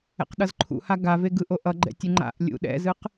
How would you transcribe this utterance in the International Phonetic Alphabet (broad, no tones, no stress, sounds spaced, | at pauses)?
ɛ̰ q ɗ ʌ z ǃʰ ṵ h a ɡ a v e ɡ ɯ ʔ o ʔ ʌ ɡ͡ǃ ɛ̰ tʲ ɯ ŋ͡ǃ a̰ ʔ lʲ ṵ ɗ ɛ̰ z ɯ q